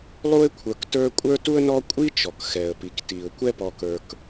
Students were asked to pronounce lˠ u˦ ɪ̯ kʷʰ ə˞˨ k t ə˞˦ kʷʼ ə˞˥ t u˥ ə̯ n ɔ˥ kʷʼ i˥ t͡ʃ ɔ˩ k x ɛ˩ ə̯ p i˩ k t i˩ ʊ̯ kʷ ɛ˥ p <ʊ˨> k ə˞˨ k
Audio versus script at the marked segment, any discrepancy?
yes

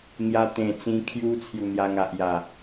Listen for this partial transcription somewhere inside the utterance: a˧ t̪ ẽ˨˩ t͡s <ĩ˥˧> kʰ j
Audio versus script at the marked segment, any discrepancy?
yes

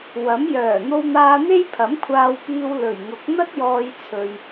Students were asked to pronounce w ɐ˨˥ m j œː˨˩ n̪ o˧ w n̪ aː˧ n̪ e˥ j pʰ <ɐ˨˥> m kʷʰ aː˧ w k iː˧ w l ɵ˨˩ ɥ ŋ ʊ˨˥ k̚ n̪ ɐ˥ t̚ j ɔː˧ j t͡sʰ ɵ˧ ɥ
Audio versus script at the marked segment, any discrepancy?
no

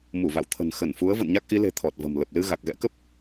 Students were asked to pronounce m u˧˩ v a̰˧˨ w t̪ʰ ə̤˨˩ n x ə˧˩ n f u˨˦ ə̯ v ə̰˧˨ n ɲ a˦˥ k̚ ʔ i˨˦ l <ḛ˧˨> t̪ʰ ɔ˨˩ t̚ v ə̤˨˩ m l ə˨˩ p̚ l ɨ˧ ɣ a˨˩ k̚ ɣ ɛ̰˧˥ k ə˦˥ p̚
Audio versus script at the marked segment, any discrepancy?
yes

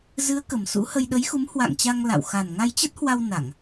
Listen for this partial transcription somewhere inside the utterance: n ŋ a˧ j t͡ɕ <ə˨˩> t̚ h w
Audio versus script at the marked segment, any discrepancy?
yes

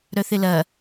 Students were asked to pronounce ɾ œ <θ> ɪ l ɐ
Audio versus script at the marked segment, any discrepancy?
no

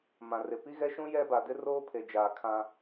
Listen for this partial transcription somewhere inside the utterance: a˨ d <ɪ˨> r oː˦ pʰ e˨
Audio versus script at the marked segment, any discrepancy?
yes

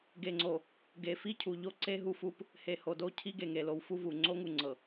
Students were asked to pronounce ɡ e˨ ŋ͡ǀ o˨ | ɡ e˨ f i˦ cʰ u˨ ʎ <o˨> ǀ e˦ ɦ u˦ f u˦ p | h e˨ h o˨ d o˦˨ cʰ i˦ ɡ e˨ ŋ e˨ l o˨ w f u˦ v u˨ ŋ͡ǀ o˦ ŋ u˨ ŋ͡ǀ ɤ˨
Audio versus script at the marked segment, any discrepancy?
yes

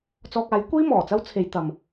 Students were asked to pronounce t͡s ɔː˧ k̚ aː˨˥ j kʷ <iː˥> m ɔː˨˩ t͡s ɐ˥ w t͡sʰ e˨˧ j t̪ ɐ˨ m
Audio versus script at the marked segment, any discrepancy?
no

